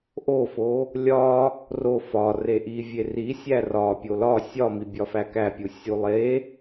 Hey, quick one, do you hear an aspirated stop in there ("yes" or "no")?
no